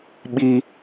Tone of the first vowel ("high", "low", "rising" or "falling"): high